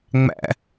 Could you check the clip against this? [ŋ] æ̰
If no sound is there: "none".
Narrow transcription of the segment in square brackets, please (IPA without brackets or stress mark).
ŋ͡m